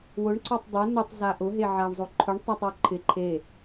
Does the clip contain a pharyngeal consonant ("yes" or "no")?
yes